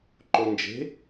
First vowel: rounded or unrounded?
rounded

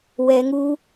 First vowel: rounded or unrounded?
unrounded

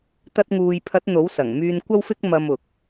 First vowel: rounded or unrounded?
unrounded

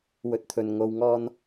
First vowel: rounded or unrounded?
rounded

